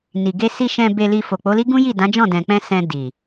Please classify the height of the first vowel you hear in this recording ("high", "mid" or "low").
high